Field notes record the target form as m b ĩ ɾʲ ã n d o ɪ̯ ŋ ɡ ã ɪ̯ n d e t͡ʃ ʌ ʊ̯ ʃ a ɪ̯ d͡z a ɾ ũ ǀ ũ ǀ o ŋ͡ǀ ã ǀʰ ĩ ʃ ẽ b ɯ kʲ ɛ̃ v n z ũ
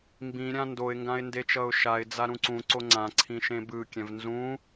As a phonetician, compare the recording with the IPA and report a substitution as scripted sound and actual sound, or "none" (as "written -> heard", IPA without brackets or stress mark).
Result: none